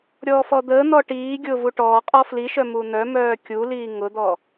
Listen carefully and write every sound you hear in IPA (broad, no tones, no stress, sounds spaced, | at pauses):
ɾʲ ɔː f ɔ d̪ əː n̪ ɔ ʈ iː ɡʲ ʊː v u ʈ ɔː qʼ ɔ f l i ʃ œ m u n̪ œ m œː kʲ u l iː ŋ ʊ d̪ ɔ